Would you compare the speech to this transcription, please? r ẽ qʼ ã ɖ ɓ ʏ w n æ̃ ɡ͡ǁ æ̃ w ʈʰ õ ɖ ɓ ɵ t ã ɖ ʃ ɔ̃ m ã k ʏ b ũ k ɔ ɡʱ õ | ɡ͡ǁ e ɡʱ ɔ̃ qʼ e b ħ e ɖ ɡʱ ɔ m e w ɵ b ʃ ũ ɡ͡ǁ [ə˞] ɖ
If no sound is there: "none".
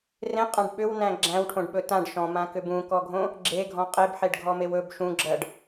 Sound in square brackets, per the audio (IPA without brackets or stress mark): ɜ